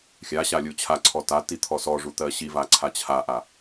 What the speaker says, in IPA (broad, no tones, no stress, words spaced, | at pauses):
xʲa ɕalʲut͡ɕʰaǀʰɔ ta tit̪ʰɔsɔʐu t̪ɜɕiva ǀʰat͡ɕʰaʔa